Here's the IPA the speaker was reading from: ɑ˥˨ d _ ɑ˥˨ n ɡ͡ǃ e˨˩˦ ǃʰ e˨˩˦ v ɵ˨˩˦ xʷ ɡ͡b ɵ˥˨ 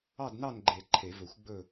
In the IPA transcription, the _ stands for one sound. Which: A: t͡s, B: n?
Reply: B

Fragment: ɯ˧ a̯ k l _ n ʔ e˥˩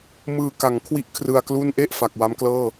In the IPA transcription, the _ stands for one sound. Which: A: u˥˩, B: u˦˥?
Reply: A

